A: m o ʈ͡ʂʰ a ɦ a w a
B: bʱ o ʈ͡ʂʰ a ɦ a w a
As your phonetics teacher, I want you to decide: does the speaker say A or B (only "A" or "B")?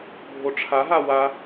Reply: B